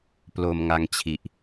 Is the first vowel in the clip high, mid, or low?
mid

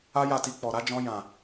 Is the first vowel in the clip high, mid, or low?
low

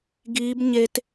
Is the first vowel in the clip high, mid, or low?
high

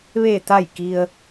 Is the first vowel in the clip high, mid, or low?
mid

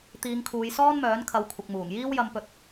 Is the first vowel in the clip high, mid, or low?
high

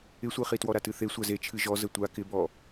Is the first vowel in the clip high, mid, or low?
high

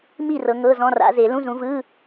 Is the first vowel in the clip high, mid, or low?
high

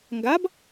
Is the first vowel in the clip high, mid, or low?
low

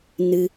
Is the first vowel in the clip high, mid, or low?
high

